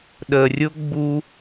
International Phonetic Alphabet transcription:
ɗ ə˨ rʲ ʊ˥ ɡ͡b u˦

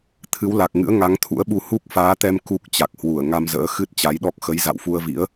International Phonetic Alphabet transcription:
t̪ʰ ɨ˨˦ w l a˨˩ k̚ ŋ ɨ̰˧˥ ə̯ ŋ a˨˦ ŋ t̪ʰ ṵ˧˥ ə̯ ɓ u˧ h u˦˥ k̚ f aː˨˦ t̪ ɛ˧ m k u˦˥ k̚ t͡ɕ a˨˩ k̚ h w u˧˩ ə̯ ŋ a˧ m z ə̰ː˧˥ x ɨ˦˥ t̚ t͡ɕ a˨˦ j ɗ ɔ˦˥ k̚ x ə˨˦ j z a̰˧˨ w f u˧ ə̯ v ḭ˧˥ ə̯

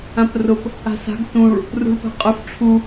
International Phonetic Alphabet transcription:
ã p r ʊ p | a̤ s a̤ ɡ t ũ ɭ | r ṳ ɭ p a̤ qʼ ʊ f ʈ͡ʂʰ u

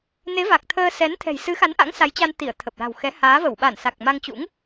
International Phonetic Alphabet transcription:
n e˨˦ v a˨˩ k̚ t̪ʰ əː˧ s ɛ˨˦ n t̪ʰ ɛ̤˨˩ j s ɨ˨˦ x a˨˦ n ʔ a̰˧˥ ŋ s a˨˦ j t͡ɕ a˧ n t̪ i˧˩ ə̯ t̪ʰ ə˨˩ p̚ l a̤˨˩ w x ɛ˨˦ h aː˨˦ v ə˧˩ w ɓ a˧˩ n s a˨˩ k̚ m a˧ ŋ t͡ɕ ṵ˧˥ ŋ

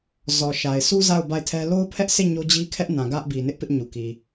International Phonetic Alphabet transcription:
z ɔ˨ ʃ a˨ ɪ̯ sʰ u˦ z a˦˨ ʊ̯ b a˦˨ ɪ̯ tʰ ɛ˦ l o˦ ʊ̯ pʰ ɛ˦ ʔ s e˦˨ ɲ o˦ d͡ʑ i˦ kʰ ɛ˦ ʔ n ã˨ ɡ ä˦ ʔ b i˨ n ɪ˦ ʔ p ɪ˦ ʔ ɲ u˨ k i˨

